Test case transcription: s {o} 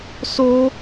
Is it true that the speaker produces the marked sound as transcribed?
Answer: yes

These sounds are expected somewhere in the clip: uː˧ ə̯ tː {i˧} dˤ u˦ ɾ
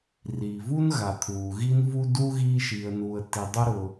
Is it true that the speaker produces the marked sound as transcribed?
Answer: yes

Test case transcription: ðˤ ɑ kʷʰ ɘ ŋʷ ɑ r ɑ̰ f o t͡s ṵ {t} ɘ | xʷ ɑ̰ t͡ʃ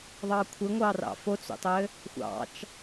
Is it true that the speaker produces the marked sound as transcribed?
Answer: no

